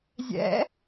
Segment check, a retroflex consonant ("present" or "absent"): absent